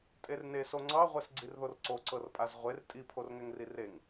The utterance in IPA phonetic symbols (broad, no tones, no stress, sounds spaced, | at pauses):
tʼ e r n e s o ŋ͡ǀ ɑ ʁʷ ɛ s ɡ͡ǀ i r ð o r ǀ o ǀ ɤ r pʼ a z ʁʷ e r tʼ i pʰ o r ŋ ɛ ŋ r i r e ŋ